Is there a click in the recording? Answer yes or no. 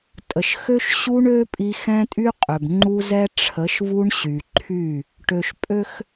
yes